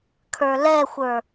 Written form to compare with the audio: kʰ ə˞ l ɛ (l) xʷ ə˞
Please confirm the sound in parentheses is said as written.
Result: no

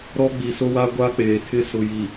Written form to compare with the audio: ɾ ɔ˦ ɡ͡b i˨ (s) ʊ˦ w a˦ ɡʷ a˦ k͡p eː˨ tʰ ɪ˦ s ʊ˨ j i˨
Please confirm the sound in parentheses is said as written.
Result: yes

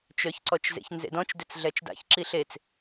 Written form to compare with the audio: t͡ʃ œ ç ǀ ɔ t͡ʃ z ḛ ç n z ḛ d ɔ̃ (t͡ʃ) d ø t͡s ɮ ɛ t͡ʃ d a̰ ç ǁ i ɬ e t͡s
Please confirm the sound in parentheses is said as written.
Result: yes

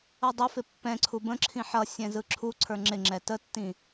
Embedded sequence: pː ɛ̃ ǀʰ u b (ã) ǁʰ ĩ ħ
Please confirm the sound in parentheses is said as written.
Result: no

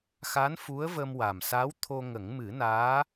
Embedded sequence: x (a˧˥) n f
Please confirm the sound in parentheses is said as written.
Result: yes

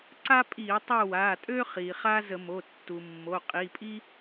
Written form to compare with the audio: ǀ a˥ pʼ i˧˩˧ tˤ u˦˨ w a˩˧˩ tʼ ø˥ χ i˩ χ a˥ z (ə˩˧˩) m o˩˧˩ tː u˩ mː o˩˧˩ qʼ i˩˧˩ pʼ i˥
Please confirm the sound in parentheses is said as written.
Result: no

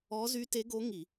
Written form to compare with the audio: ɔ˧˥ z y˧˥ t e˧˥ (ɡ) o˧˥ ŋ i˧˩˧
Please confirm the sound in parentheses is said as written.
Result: yes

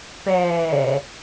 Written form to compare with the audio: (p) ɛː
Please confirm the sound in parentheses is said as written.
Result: yes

